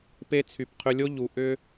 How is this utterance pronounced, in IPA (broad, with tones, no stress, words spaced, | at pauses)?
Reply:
pe˧t͡sʰy˨pqʰʏ˧lʲo˦ ʎu˨ ʔʏ˧